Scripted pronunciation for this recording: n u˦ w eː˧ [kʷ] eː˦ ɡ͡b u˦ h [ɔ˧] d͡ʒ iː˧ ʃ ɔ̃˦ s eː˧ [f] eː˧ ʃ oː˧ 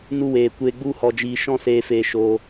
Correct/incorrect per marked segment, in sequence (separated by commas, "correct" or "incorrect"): correct, correct, correct